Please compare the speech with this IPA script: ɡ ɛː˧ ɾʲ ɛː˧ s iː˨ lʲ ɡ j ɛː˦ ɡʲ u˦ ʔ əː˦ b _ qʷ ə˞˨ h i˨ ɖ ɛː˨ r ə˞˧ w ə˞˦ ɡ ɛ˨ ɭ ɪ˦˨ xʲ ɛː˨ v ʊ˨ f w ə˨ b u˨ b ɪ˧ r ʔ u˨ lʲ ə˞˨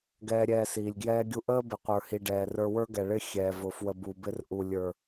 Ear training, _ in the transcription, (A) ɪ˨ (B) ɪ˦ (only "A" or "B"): A